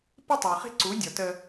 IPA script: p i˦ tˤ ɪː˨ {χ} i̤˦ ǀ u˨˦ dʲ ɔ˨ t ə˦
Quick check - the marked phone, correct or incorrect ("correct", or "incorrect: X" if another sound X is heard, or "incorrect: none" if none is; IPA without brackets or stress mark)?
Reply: correct